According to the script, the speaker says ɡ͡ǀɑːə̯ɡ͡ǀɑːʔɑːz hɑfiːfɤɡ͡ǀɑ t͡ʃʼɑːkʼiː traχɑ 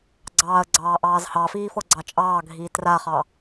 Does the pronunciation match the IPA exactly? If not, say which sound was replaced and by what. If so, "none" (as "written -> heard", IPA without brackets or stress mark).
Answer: kʼ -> ɡʱ